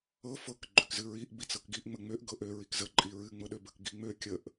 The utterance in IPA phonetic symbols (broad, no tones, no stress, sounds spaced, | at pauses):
ɤ f ɤ k ɡ͡ǃ ø k z ɨ ɹ i ʔ b i t͡s ɤ k ɡ i ʔ ŋ͡m ə ŋ͡m ø ʔ ɡ ɤ ʔ ø ɹ i k z ə ǃʼ i ɹ ɨ ŋ͡m ɤ ɗ ø b ə k ɡ i ŋ͡m ø kʲ ə ʔ